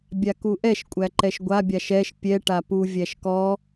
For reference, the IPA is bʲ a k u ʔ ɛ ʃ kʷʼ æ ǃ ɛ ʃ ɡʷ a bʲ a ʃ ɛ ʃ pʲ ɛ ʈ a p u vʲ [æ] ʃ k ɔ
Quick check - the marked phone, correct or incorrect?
correct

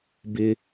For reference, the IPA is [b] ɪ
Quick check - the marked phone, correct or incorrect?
correct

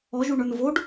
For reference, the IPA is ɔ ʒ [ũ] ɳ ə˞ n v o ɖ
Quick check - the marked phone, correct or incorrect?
incorrect: u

